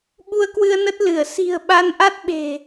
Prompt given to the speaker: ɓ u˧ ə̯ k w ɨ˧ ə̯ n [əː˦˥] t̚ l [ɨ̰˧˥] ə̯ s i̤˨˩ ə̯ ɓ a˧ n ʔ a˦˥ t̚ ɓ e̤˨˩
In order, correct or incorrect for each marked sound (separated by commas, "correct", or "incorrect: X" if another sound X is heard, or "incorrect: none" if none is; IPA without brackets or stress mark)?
incorrect: ə˦˥, incorrect: ɨ˧˩